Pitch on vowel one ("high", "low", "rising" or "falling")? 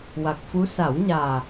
low